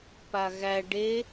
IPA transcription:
paɣæ ɖe

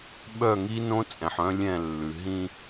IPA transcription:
ɓœ˦˨ŋi˦nõ˦ t͡sʼɛ̃˨ħœ̃˦lʲɛ̃˦˨lːʉ˨ ɦĩ˦

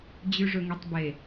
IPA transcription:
d͡ʑʉʐɵŋitˤbe

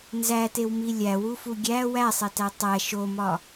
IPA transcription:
nzætewmi lʲæwufu ɡʲæ wæsˤetæ tˤæ ʃomɒ

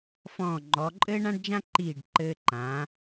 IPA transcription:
fɔ̃ː˧˩ŋ͡ǃɔ˩˧ ǃʼɘː˥ɳã˥ɖd͡ʒã˥ǃiː˧˩ɖ ǃɘː˧ǃãː˩˧

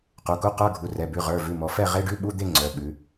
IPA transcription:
qu˩˧˩ku˧˥˧ qə˞˧˥˧ɡʱu˩˧˩rɛ˩˧˩bʉ˩˧˩ ʁə˞˩˧˩vʉ˩˧˩ mɔ˩˧ fɛ˥˨ ʁe˧˥˧ɖʉ˧˥˧ ɓu˧˥˧d̪e˥˨ ŋ͡ǀœ˩˧˩ɓʉ˩˧

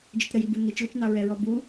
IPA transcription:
d͡ʒətɾəjibu nit͡ʃlɪt͡ʃnɑ ɹɛɹɔbu

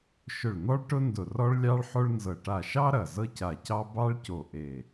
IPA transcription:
ʃʊ˧˩ɭn̪ɔ˥ɭʈʊ˥ndʊ˧˩ rɔ˥ɭlʲɑ˥ɭħo˥ɭnzɤ˧˩ ʈa˧˩ʃɑ˥ ɾɐ˧˩ zɤ˥ca˧˩cɑ˥ bɑ˥ɭco˧˩ ʔe˧˩

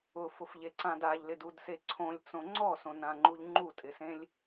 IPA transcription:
ʊfʊfʎeǀãd aʎlɪdudse ǀʰõlʲt͡sõ ŋ͡ǀɔsõnãŋ͡ǃuʎ ŋ͡ǃutʼɪsẽlʲ

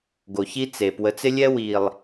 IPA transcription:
ɡo˨çi˦t͡se˨ pwə˨˦t͡sɪ˦lʲɛ˦ wi˨lˠ

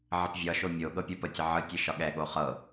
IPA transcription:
ʕəpvʲɒʃo mʲo ɠɤpʲopətʲə ʕɯtʲɯ ʃɒɠɛɠo χɤ

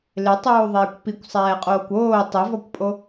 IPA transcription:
lɪtˤuːðˤɛːkʷ pikʷsˤɛːqʼoːkʷ oː tˤɪvɔkʷpʼo

